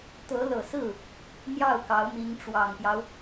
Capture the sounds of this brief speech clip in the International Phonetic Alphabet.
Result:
t̪ ɤ˧˥ l ɤ˨˩ s ɹ̩˥˩ | n̪ j ɑ˥˩ ʊ̯ k ɑ˧˥ ʊ̯ m i˧˥ ŋ ʈ͡ʂ w ɑ˨˩ ŋ p j ɑ˦ ʊ̯

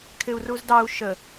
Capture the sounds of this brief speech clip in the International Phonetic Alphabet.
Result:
kʰ ɪ u̯ r u z d ɑ u̯ ʃ ə

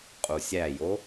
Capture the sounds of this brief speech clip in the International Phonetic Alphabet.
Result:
qʼ u sʲ æ j o

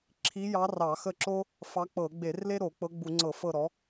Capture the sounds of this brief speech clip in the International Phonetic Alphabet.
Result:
ǁʰ i˧˥ j ɑ˧˥ r ɑ˧˩˧ x ə˦˨ ǁ o˥ | f ɑ˧˥ k͡p ɤ˧˩˧ ɡ͡b e˧˩˧ r l e˥ ɾ o˧˩˧ k͡p ɤ˧˥ ɡ͡b u˧˩˧ ŋ͡ǀ ɤ˧˩˧ f ɤ˦˨ ɾ ɔ˩˥

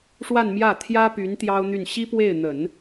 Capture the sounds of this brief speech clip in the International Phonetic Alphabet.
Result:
ʂ w a˥˧ n m j ä˥˩ t̪ʰ j ä˥ p y˧˥ n t̪ j ɑ˥ ʊ̯ n̪ y˥˩ n ɕ i˥ p w e˥˩ ɪ̯ n̪ ə˨˩˦ n

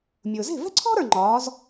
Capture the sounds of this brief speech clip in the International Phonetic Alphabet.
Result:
mʲ ʊː˩ z e̤˥˩ v ɛ̤˥ ǀʰ ɔ̤˥ ɾ ə˞˥˩ ŋ͡ǃ ɒː˩˥ z

